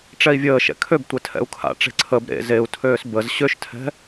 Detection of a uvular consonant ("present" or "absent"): absent